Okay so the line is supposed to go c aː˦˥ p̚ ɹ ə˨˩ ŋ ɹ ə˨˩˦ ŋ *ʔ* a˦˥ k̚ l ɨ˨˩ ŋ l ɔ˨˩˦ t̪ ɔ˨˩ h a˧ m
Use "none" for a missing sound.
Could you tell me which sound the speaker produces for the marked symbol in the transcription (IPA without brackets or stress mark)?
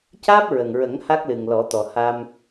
h